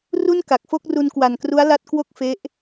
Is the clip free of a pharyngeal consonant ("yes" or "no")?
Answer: yes